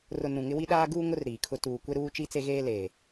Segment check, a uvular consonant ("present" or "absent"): absent